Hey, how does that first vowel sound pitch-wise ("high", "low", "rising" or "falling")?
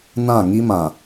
falling